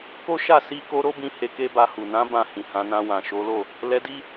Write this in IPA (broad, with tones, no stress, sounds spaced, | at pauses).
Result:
k o˦ ʃ a˦˨ s i˧ k o˧ ɾ o˦ b ĩ˧ h e˧ k e˦ b a˧ h u˨ n ã˨˦ b ã˦˨ h ĩ˨ h ã˨˦ n ã˧ w ã˨ ʃ o˨˦ l o˦˨ | l ɛ˧ d i˦